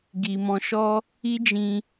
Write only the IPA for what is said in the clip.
ɡ i˨ m ɔ̃˧ ʃ ɔ˦ | i˦ d͡ʒ ĩ˧

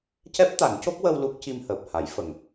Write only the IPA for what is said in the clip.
c ɛ˦˥ p̚ t̪ a˨˩˦ n c o˦˥ k̚ w ə˧ w l u˦˥ k̚ c i˧ m h əː˨˩ p̚ h a˨˩˦ j f ə˨˩ ŋ

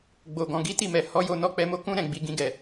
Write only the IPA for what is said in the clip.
ɡ͡b o˨ ɡ ɔ̃˨ ɡ i˨˦ t i˦˨ m ɛ˨ h ɔ˨˦ j o˧ n ɔ˧ k͡p ɛ˧ m o˦ k ũ˦ ɾ ɛ̃˦˨ ɡ͡b i˧ ɡ ĩ˦ ɡ ɛ˦˨

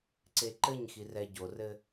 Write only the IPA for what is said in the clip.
ǀ e ǃ ɘ ɲ x i r ɛ ɟ o r ɘ

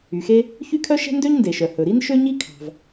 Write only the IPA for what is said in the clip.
y˩ x e˥ | ç y˥ kʰ œ˥ ʃ ɛ̤˥ n d ø˥ ɲ n d e˩ ʃ œ˩ h ɵ˩ ɾ i˥ n ʃ ø˥ ɲ i˥ kʰ ɑ̤˩ v

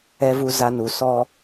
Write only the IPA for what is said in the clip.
ɛ˨ v u˨ z a˦ n u˨ s ɔ˦

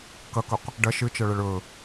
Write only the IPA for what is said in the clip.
k ɐ k ɵ q | ɖ ɐ ʃ ɨ t͡ʃ ʌ ɭ ɛ ɭ ɵ

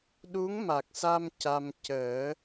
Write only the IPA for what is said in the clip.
ɗ u˧˥ ŋ m a˨˩ k̚ s a˧ m c a˧ m c əː˨˩˦

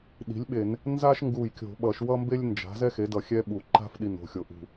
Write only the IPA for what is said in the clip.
ɗ i̤˩˥ lʲ ɓ e˧˩˧ n | n z a˥ ʃ ŋ ɡ u˧˩ j kʲ o̤˧˩˧ ɓ ʌ˧˩˧ ʃ w ʌ˥ m b e˥ lʲ n d͡ʒ a̤˩˥ z ɛ˥ x e˩˥ d ʌ˧˩ xʲ ɛ˥ ɓ u˧˩˧ ǃ a̤˥ f ɗ i˧˩ n o̤˧˩ xʲ o˧˩ ʔ ṳ˧˩

